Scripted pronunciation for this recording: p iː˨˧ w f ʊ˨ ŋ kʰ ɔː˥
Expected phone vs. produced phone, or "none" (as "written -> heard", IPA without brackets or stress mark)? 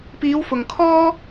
none